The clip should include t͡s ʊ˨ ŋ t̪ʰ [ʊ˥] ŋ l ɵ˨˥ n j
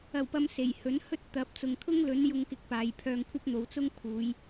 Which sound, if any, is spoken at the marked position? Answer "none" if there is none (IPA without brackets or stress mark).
ʊ˥